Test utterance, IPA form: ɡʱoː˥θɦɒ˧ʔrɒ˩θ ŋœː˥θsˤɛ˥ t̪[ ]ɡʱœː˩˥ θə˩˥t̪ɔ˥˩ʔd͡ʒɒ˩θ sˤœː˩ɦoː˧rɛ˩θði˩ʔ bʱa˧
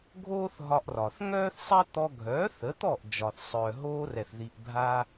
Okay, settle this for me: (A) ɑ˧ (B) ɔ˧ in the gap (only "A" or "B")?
B